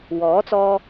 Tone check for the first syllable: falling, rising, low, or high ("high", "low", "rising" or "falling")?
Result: rising